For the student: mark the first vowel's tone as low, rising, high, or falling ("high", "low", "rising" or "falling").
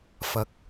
low